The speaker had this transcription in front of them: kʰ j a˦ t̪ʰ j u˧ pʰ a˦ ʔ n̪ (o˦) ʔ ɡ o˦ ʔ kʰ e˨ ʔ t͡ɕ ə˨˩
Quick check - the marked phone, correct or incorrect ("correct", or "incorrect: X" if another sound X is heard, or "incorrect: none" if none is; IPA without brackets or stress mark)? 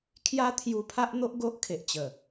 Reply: correct